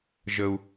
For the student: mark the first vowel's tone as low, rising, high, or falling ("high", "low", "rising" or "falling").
high